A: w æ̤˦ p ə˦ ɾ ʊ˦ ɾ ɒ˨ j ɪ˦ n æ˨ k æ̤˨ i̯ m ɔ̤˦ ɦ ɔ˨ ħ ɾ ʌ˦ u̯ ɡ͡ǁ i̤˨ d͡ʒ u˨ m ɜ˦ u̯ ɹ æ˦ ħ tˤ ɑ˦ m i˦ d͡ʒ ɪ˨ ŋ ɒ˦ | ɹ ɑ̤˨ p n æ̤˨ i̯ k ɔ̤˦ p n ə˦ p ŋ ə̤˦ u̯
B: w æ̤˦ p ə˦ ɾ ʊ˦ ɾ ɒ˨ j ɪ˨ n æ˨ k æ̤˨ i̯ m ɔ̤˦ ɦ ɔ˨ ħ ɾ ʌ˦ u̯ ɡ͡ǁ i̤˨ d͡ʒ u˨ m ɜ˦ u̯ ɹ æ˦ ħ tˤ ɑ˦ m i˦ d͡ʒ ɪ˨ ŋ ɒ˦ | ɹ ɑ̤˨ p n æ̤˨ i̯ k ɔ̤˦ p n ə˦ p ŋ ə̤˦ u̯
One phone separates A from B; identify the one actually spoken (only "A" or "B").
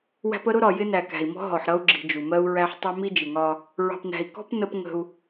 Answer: A